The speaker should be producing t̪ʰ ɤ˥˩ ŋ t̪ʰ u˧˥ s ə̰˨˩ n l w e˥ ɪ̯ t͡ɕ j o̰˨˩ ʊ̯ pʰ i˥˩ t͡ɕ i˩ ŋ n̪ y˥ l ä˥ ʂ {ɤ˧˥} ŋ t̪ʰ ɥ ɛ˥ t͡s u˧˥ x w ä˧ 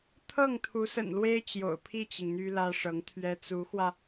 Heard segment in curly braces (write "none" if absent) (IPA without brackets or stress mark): ɤ˧˥